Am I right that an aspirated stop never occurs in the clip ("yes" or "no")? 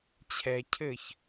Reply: no